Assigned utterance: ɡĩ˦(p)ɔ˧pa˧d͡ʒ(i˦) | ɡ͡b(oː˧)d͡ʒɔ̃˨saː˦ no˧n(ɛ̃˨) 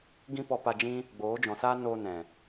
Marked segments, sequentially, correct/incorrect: correct, incorrect: ĩ˦, incorrect: oː˨˦, correct

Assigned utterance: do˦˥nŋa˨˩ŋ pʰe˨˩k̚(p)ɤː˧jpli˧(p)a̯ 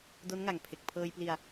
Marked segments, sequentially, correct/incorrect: incorrect: pʰ, incorrect: none

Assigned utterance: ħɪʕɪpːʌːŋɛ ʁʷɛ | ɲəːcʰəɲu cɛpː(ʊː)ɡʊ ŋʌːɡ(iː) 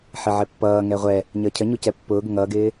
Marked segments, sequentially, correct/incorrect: correct, incorrect: ɪː

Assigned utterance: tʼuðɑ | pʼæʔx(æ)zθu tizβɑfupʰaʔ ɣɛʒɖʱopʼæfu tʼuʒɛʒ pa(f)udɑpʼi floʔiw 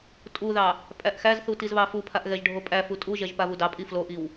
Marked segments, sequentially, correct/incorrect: correct, incorrect: v

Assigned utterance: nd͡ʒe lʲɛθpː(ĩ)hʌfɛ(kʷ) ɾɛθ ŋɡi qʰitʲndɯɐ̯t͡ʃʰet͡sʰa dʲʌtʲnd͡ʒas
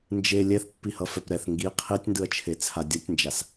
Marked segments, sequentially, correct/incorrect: incorrect: i, incorrect: p

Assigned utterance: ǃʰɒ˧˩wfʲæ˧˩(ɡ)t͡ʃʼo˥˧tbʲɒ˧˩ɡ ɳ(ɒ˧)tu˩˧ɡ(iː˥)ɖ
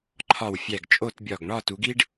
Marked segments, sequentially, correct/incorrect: correct, incorrect: ɒ˥˧, incorrect: i˥

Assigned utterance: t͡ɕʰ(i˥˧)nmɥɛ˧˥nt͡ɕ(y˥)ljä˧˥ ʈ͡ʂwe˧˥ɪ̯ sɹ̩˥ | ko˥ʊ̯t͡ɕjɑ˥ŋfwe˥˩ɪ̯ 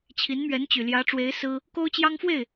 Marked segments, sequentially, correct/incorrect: incorrect: i˧˥, incorrect: y˨˩

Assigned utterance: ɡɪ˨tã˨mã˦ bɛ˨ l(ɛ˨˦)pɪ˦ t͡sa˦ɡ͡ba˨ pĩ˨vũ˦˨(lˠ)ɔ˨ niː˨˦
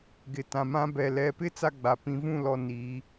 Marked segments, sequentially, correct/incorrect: correct, incorrect: l

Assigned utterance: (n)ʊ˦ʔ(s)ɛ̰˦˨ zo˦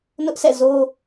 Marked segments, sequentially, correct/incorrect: correct, correct

